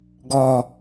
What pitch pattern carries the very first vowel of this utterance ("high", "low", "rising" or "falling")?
low